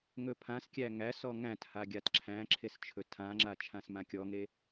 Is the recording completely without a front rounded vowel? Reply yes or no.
yes